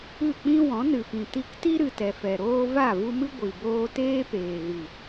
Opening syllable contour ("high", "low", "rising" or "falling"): falling